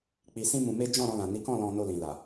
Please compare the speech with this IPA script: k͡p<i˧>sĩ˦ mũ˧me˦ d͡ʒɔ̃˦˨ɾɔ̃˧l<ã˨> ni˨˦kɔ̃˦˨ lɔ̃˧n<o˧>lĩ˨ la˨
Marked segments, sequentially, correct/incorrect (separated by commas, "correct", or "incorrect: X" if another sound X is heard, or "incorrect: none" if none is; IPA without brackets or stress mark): correct, correct, correct